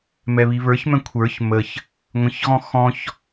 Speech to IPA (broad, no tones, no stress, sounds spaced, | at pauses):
m ɛ β i β ə˞ ç m ɛ̃ kʷʰ ə˞ ç m ə ç | ŋʷ ə̃ ç ɣ ɔ̃ x ɔ̃ ç